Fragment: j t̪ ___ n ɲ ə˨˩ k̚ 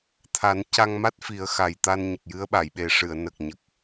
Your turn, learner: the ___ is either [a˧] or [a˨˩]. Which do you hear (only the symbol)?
a˧